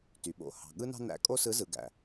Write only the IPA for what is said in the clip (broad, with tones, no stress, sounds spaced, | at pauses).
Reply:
t y˩ ɓ o̰˩˧ h ɑ̤˩ ɠ ɯ˥ n ɑ̤˥ n æ̰˧˥ kʼ o˥ s ɯ˧˥ z ɯ˩˧ ɡ æ̰˩